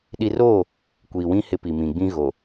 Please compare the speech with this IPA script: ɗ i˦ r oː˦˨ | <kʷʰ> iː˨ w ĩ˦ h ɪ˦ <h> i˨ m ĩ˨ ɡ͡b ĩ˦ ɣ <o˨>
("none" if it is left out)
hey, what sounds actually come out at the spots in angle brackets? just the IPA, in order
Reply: kʷ, p, o˨

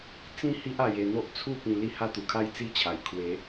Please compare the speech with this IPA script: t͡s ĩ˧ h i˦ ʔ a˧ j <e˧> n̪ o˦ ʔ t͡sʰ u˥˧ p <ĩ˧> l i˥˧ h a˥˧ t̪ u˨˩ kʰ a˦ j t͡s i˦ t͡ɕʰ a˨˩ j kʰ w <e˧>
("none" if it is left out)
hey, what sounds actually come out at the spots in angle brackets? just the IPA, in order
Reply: e˧, ĩ˧, e˨˦

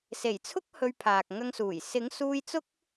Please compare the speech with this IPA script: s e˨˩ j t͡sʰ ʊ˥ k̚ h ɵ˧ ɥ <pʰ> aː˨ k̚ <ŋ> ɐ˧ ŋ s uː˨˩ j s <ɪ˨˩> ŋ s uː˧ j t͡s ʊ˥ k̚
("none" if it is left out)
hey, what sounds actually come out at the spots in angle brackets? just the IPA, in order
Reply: pʰ, ŋ, ɪ˨˥

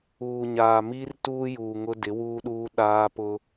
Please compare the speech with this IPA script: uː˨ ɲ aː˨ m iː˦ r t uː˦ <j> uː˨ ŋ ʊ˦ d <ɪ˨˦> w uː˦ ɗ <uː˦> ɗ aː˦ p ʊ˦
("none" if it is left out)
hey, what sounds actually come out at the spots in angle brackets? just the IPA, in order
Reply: j, ɪ˨˦, uː˦

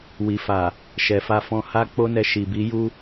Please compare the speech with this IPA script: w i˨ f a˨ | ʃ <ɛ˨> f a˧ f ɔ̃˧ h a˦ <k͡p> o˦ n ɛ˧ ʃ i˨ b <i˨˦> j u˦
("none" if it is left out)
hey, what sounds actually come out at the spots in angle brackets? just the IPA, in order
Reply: ɛ˨, k͡p, i˨˦

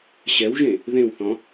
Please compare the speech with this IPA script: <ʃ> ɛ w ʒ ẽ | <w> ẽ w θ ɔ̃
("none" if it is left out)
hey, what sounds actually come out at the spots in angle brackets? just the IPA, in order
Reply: ɕ, ð

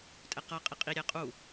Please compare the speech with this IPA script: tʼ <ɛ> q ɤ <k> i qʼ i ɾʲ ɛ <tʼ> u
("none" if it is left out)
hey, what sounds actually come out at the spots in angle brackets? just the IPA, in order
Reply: ɛ, qʼ, qʼ

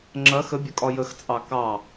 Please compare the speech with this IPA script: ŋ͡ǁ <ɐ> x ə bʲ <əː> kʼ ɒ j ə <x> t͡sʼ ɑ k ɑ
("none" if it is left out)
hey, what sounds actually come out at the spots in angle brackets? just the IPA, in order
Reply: ɐ, ə, x

